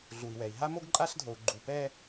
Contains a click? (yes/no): yes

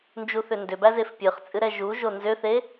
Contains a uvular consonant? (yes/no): yes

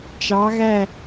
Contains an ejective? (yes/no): no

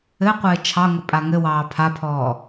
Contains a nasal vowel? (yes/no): no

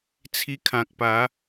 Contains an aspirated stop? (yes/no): yes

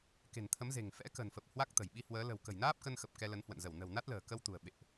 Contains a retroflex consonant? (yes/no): no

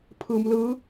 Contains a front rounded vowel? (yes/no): no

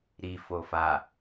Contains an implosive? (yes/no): no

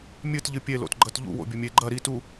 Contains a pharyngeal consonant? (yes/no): no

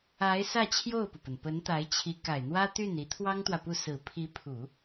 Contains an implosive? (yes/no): no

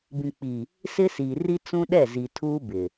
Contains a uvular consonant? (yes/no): no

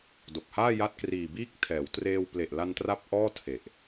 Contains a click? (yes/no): no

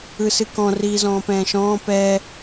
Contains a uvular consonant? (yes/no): no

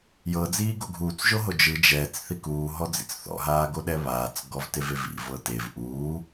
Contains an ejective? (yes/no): no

